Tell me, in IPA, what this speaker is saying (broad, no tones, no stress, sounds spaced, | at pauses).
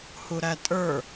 h u ɾ æ tʼ ə˞